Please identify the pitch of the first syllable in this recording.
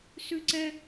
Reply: high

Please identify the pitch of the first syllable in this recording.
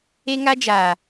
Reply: high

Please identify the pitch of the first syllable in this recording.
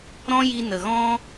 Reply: high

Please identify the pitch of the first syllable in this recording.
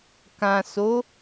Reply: low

